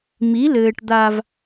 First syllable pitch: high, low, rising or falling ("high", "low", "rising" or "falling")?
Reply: rising